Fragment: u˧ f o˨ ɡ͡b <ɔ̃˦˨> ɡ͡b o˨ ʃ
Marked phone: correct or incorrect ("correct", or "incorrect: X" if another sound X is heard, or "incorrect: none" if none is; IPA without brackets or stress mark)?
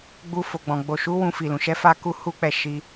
incorrect: ɔ̃˨